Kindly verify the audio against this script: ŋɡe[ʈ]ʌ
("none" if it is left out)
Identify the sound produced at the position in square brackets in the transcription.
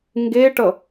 ʈ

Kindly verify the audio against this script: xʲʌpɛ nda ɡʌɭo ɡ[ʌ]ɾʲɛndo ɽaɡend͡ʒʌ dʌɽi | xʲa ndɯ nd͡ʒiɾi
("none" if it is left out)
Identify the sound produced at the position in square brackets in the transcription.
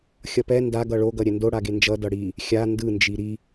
ʌ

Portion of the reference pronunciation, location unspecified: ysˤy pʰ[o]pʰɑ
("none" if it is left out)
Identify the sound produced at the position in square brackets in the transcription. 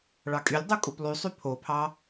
o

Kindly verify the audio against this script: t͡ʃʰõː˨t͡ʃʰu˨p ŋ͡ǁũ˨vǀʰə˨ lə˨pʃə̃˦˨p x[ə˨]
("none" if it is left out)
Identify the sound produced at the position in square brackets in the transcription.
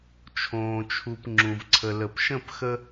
ə˦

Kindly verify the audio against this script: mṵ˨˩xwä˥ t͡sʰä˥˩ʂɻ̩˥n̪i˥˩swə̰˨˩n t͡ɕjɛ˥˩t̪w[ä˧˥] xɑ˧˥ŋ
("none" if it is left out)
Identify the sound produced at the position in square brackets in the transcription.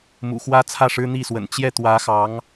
ä˧˥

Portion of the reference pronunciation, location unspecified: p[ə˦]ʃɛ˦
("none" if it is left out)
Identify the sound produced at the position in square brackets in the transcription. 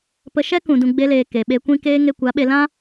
ə˧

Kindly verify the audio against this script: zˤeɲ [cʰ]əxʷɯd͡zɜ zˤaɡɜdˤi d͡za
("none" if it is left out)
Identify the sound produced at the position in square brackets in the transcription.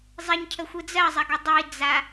cʰ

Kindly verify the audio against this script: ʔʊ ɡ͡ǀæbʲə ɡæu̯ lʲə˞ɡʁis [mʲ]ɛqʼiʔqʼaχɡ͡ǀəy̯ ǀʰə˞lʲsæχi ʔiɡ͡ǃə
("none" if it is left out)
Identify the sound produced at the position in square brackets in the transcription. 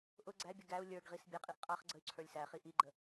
bʲ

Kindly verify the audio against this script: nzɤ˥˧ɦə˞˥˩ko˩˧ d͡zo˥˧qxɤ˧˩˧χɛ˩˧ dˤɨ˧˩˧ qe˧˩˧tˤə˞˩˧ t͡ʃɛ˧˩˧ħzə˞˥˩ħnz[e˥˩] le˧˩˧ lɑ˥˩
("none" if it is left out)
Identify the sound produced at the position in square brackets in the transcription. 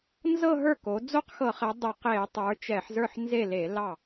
e˥˩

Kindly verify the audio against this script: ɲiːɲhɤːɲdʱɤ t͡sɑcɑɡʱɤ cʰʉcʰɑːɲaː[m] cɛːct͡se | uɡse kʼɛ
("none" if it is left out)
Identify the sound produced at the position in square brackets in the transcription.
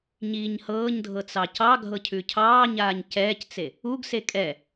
ɲ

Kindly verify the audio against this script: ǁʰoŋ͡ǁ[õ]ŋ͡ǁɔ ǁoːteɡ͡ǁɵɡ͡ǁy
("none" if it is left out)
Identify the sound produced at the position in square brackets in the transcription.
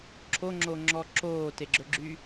o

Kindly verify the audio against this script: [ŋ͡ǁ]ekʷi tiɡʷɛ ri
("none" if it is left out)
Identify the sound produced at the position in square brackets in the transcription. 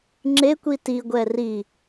ŋ͡ǁ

